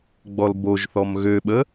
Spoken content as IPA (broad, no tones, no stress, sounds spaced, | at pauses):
ɡ͡b ɔ l b o ʒ θ ɔ m ɣ ø ɓ ə